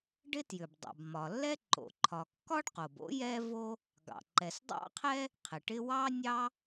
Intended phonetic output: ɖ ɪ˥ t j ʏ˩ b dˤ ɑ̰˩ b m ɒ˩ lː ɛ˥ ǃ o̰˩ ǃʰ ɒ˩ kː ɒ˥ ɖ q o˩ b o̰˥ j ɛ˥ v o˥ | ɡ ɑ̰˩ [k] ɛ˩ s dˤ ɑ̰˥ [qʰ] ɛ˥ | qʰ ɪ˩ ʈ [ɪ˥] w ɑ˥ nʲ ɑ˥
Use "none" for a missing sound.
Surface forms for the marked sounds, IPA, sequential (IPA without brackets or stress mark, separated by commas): ǃ, qʰ, ɪ˥